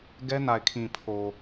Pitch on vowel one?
high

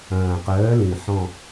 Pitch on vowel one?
low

